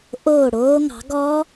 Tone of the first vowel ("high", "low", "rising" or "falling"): falling